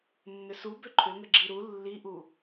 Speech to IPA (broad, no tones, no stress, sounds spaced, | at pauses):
nː ʏ s u b ʏ ǃʰ ʏ ŋ ə ɡ͡ǁ i ɾ u lː i ʔ u